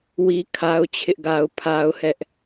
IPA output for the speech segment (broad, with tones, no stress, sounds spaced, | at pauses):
w i˦ kʰ a˦ ʊ̯ t͡ɕʰ ɪ˦ ʔ ɡ a˦ ʊ̯ pʰ a˦ ʊ̯ h ɛ˦ ʔ